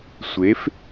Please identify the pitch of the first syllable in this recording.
rising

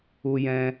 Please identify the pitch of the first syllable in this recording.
high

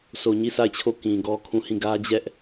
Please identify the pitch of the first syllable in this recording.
low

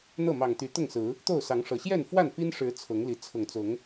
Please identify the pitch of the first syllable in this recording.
falling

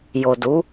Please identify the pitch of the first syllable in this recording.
low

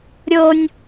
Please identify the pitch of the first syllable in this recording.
low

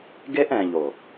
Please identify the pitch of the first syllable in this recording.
high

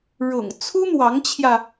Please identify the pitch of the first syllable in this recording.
low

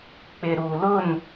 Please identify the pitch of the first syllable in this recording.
low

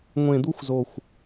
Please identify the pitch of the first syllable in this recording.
low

